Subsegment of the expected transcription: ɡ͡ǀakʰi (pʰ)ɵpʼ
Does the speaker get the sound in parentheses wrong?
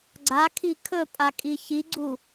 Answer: yes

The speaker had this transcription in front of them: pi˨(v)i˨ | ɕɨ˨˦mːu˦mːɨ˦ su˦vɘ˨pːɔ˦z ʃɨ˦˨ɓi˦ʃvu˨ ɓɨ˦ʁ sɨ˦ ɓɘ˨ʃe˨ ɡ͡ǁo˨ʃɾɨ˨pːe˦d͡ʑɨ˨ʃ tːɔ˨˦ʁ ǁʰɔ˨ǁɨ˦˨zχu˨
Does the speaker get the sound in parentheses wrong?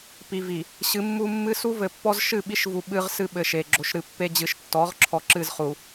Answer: no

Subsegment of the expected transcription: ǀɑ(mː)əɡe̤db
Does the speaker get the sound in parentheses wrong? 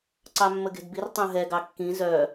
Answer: no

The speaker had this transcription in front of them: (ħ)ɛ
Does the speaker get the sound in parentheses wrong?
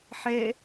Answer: no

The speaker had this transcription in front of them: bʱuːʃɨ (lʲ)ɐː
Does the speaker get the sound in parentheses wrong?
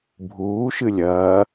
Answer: no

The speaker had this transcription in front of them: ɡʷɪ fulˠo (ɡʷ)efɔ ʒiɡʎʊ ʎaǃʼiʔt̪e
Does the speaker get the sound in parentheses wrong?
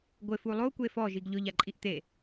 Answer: yes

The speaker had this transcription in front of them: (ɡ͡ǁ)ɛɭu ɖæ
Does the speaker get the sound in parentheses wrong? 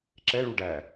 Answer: yes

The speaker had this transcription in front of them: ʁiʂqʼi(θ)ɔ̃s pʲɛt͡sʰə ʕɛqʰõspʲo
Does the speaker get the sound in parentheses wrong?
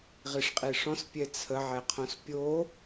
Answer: yes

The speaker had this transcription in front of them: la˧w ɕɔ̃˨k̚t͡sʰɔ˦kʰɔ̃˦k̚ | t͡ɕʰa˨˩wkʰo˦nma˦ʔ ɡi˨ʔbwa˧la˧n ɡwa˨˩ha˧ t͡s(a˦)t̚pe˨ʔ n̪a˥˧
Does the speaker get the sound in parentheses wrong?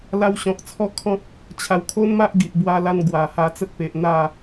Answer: yes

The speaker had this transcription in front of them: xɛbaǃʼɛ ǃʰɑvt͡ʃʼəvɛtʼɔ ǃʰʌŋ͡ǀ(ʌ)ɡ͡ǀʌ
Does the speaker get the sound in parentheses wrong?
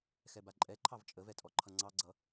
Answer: yes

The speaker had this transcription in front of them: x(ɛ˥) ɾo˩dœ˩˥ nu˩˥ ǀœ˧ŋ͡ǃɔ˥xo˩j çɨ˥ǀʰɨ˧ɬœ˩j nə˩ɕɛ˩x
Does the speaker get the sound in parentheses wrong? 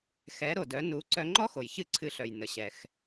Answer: yes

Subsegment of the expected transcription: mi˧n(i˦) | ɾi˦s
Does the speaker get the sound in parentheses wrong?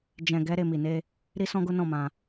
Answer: yes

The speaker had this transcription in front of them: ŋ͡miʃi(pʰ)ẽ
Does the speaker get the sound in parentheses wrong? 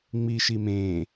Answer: yes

